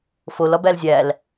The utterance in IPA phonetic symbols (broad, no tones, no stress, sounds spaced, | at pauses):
f o l ɒ b æ l zʲ æ l